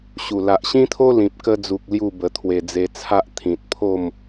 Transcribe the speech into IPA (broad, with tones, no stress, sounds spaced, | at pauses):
ɕ u˨˩ l a˨ ʔ ɕ ĩ˦ t̪ʰ o˦ l ĩ˨ p̚ k ə˧ d͡z u˨ k̚ l j u˥˧ b ə˧ t̪ʰ w e˨˩ d͡z e˧ t͡sʰ a˦ ʔ t̪ʰ ĩ˨ t̚ pʰ o˥˧ m